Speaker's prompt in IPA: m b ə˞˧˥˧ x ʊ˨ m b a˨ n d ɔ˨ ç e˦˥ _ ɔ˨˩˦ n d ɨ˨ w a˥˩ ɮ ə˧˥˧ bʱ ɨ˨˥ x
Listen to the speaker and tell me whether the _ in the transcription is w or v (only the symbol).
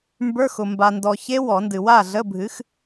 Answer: w